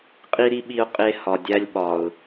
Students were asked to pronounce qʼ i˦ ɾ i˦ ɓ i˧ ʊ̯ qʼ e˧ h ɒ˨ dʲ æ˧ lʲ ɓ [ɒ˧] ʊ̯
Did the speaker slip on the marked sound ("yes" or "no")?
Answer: yes